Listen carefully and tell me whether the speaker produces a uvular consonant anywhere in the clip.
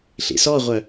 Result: yes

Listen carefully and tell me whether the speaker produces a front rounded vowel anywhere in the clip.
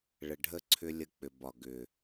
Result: yes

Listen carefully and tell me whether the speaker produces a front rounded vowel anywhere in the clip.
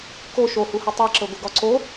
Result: no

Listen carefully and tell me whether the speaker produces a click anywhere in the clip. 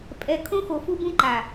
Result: yes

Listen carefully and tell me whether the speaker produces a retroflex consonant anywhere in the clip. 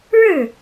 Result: yes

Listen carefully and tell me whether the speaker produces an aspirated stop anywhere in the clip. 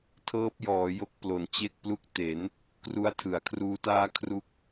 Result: yes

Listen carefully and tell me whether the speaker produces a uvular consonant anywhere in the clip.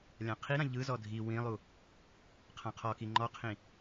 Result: yes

